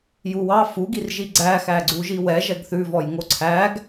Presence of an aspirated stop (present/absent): present